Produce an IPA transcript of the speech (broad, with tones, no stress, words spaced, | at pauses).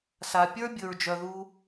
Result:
sa˩pʲə˞˦ bʲɵ˨ɹd͡ʒœ˨ðu˦